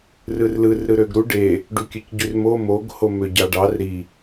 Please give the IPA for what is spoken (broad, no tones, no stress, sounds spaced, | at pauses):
r ɯ r l ɯ r ɾ ɯ ɾ ø ɡ ɾ u ɖ e | ɖ u kʲ ø c ɟ y r m o m o ɡ h o m ø ɟ ɑ ɖ ɑ r ɾ i